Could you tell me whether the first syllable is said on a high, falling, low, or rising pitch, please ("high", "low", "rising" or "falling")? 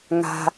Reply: low